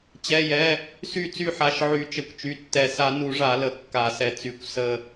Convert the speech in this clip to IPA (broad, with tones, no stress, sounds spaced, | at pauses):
t͡ɕ ɛ˩˧˩ j ɛ˩˧˩ | s y˦˨ t͡s y˦˨ ħ a˩˧˩ ʃ ʕ y˨˩˦ t͡ʃ ə˩˧˩ kʷ t͡ʃ y˩˧˩ tː ɛ˨˩˦ s a˨˩˦ n u˨˩˦ ʐ a˨˩˦ l ə˩˧˩ kː a˨˩˦ s ɛ˩˧˩ t͡s y˨˩˦ kʷ s ə˦˨